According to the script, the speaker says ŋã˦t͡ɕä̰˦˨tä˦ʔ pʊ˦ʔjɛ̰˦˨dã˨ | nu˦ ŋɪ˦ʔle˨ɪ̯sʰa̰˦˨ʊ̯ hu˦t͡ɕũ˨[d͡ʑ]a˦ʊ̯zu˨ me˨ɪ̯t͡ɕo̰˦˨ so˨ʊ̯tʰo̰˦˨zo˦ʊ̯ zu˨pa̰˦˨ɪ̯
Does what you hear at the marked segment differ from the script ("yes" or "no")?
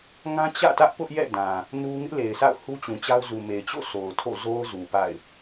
yes